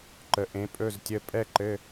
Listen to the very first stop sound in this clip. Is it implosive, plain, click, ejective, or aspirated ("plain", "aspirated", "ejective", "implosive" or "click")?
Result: click